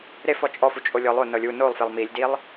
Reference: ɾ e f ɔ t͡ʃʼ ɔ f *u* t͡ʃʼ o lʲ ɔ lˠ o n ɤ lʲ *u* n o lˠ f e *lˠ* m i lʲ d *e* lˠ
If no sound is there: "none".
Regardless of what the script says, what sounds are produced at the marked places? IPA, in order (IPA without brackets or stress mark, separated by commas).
u, u, lˠ, i